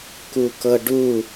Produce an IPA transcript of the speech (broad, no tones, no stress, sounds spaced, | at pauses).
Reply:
k u k ɤ ɖ u